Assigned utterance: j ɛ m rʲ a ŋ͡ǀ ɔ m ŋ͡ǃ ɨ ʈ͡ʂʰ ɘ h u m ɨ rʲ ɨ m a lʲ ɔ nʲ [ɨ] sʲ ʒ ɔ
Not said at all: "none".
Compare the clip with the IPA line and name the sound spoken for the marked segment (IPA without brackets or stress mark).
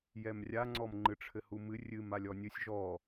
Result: ɨ